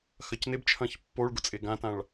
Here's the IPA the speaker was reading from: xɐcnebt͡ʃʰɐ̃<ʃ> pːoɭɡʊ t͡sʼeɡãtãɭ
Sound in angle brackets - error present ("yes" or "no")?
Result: yes